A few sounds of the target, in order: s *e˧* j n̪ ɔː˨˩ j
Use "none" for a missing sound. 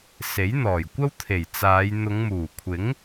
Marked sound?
e˨˥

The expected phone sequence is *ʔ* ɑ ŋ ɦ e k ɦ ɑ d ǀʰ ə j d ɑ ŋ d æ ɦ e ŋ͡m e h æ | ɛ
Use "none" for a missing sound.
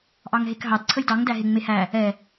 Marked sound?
ʔ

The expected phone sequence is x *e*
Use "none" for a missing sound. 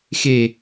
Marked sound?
e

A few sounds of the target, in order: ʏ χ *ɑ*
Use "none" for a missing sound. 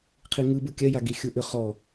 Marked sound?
ɔ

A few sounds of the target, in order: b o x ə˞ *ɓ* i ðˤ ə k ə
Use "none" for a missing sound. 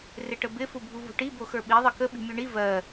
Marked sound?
ɓ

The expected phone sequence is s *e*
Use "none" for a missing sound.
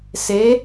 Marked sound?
e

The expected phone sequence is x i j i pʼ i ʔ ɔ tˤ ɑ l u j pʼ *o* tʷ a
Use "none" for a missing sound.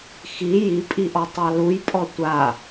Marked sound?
ɔ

